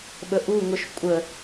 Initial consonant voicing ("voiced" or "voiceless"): voiced